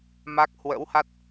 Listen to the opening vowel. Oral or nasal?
oral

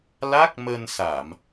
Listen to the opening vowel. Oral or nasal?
oral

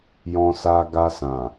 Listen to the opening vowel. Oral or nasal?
nasal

